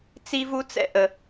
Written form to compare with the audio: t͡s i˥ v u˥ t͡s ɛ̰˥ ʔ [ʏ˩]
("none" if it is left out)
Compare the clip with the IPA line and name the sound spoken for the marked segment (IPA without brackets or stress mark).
ə˩